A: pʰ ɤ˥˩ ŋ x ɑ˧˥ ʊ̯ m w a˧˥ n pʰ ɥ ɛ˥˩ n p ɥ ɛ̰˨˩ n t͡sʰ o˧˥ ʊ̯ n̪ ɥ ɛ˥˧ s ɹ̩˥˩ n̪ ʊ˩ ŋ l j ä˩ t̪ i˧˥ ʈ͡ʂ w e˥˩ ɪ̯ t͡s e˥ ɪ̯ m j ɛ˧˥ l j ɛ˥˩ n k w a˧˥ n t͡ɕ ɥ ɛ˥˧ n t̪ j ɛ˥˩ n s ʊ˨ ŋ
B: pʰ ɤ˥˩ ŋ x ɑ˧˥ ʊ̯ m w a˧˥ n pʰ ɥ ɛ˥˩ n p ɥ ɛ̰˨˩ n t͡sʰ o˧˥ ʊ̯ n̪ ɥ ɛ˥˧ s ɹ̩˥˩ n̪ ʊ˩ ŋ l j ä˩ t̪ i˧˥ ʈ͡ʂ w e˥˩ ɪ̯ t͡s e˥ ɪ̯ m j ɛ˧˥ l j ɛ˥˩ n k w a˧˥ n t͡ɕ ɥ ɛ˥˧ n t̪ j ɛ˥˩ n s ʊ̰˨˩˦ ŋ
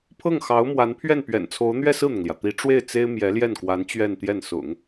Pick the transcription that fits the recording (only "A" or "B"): B